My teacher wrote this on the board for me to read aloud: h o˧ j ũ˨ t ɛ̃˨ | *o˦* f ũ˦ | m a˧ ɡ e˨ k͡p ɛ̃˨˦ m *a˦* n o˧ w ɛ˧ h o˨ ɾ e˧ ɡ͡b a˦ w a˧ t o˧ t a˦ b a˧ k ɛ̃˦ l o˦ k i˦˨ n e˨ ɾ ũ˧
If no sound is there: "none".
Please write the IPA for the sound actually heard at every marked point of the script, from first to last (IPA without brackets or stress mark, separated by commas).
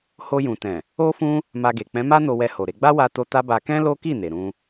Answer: o˦, a˦